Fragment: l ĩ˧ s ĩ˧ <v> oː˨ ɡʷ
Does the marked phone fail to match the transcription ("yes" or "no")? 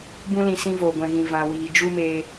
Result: no